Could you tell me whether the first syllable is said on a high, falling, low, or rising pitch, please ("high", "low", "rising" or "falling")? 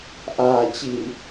low